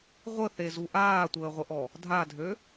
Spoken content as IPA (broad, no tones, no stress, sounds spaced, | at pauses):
ʁʷ ə θ e z u ʔ aː tʷ əː ʁʷ ə ʔ ɔ | dʱ a dʱ ø